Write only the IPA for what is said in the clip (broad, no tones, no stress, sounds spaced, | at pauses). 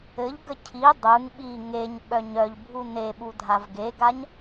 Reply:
ɘ ʎ ɡ ə cʰ i dˤ ɯ ŋ ɓ i ŋ e ɲ ɓ œ ɲ œ ʎ bʱ u n e ɓ u dʱ a v ɡ e ɡ a ɲ